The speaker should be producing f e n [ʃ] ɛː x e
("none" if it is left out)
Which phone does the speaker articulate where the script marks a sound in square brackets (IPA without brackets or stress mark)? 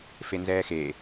z